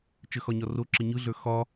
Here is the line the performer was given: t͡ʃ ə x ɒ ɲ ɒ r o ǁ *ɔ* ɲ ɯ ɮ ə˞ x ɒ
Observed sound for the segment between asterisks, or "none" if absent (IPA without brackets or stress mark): ə